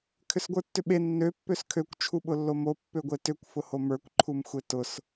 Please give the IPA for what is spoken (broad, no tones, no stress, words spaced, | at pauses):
kʰʏsɡʷə˞tːʏɓe nːø pːøskʰøkʷ t͡ʃʰuɓʊlːomo pːøɡʷetʏkʷ fʊhomə˞kʷ ǃʰumxʷetʊs